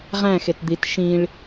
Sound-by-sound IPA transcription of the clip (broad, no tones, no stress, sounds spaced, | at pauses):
ʁ æ̃ x e t d̪ i t ʃ ĩ ɭ